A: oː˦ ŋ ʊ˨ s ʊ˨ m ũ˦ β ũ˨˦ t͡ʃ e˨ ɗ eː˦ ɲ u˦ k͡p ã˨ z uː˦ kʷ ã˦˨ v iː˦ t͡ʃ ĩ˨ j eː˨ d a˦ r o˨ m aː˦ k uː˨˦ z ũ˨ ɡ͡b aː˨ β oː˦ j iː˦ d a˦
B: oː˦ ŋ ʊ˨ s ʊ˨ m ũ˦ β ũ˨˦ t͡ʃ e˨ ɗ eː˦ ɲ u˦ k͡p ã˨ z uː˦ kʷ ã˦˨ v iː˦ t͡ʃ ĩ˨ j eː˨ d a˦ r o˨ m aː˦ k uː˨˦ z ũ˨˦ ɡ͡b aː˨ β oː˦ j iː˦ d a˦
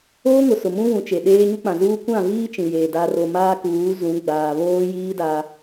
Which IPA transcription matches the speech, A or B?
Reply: B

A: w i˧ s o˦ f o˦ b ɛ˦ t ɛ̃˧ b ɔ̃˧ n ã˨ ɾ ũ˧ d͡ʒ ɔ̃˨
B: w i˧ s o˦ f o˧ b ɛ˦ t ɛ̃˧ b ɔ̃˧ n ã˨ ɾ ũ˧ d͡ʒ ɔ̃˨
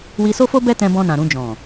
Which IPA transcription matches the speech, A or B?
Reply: A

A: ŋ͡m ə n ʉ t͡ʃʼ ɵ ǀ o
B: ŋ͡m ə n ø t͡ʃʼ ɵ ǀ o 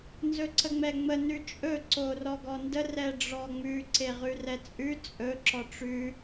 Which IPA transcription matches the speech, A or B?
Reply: A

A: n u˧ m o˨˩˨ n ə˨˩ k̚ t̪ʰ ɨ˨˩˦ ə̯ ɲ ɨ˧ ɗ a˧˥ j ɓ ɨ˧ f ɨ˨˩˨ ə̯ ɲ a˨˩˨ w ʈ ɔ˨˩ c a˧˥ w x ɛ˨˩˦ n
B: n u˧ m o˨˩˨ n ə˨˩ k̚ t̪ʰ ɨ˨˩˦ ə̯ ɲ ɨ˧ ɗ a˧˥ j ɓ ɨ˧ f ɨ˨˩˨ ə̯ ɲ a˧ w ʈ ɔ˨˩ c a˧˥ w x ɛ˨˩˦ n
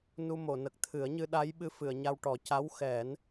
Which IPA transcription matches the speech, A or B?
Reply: B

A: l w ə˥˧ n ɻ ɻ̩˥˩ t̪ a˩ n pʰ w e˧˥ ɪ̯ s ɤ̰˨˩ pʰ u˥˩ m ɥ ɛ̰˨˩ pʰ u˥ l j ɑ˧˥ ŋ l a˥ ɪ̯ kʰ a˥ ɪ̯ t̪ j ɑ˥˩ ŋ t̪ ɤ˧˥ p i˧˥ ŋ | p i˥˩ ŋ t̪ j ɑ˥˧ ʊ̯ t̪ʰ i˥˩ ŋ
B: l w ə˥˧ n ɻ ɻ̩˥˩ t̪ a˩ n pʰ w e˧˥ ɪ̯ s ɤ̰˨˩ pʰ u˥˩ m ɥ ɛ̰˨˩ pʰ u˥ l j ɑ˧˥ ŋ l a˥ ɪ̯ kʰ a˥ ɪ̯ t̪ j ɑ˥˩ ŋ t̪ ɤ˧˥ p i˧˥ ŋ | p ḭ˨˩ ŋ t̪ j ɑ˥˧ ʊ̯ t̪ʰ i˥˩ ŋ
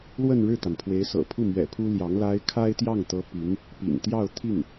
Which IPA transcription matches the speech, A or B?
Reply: B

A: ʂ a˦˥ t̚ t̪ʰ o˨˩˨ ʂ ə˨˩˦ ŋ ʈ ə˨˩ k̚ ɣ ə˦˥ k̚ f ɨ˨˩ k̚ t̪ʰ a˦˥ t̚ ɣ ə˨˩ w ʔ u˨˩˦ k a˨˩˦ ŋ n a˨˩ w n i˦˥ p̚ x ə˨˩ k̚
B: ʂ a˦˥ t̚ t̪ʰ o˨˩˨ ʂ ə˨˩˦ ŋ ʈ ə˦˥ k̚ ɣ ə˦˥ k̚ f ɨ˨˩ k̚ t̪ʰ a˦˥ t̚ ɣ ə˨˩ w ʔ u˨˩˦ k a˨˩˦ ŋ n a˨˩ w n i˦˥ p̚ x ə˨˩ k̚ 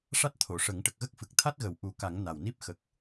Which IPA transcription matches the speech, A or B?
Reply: A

